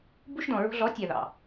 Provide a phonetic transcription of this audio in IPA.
bu˦ʃdɔ̃˨ɹo̤˦ ɮɔ˨˦tʲa˨ðɑ̰˨

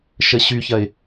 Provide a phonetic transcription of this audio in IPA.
ʃəɕyçɐɪ̯

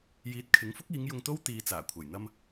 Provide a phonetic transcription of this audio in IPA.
jiː˨˥t̚kʰɪ˨˥ŋfʊ˥k̚ iː˨˥ŋ jʊ˧ŋt̪o˥wt̪iː˨˧ t͡saː˨˩kʷʰɐ˨˩jn̪ɐ˧m

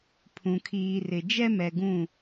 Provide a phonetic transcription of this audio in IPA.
pʰũ˨kʰiː˨rɪ˨ d͡ʒɛ˦mɛ˨ɡũ˦˨

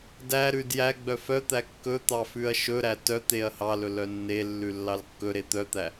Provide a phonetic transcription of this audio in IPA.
dæɾʉd jæɡ͡bœ fœt̪æ kːɵt̪ɑ fʉɐ̯ʃɵɾæ tœt̪eɐ̯ hɑlɵ lœnːelːʉ lːɑlkːɵɾe t̪œt̪æ

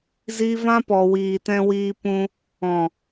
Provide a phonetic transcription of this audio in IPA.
zi˧vã˦pɔ˨ wiː˨tɛ̃˧wiː˧pũ˧ | ɔ̃˨

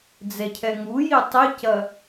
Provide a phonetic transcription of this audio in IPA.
d͡zɛcʰɛŋuji tˤicɐ

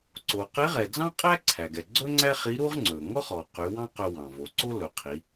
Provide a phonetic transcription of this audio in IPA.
ǀo˩qe˧˥ʁɛ˩d͡zɑ̃˥ qʼæ˥ǀʰæ˩ɡɛ˩ ɡ͡ǀɵ˥ŋ͡ǀæ˥χi˧˥ ɾu˥ʁŋ͡ǀɵ˩ ŋɔ˥χɔ˩qy˩˧ wɑ̃˥qɵ˧ wɑ̃˩ vo˩˧ǀo˥lɵ˩˧ qʰi˩˧

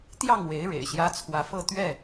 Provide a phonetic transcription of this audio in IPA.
t̪jɑ˥˨ŋwe˨˦ɪ̯ ɻḛ˨˩ɪ̯ɕjä˦ t͡sʰwä˨˦fɤ˥˨ t̪ɥɛ˥˨

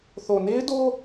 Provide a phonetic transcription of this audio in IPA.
θo˨ne˦ɪ̯ do˦

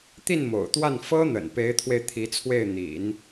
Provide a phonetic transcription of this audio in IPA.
t̪i˥˩nmo̰˨˩ʊ̯t̪wa˥˩n fɤ˥ n̪ə̰˨˩npe˧˥ɪ̯t̪ʰwe˧ɪ̯ t̪ʰi˧˥t͡sʰwe˥˩ɪ̯n̪ḭ˨˩˦n

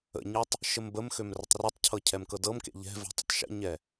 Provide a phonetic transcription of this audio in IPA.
ə̰ɲɤtˤ | ʃəmbəmxøm rətˤrøtˤcʰɤ cʰɛmkɤdɤmkḛ ʎɛ̤ ve̤tˤə̰tˤʃə̰ɲɛ

